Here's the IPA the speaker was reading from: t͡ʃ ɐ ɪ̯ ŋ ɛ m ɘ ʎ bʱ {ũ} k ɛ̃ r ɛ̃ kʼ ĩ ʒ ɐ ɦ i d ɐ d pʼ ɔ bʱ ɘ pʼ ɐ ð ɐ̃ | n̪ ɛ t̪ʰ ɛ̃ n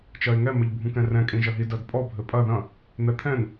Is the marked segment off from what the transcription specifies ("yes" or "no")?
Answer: no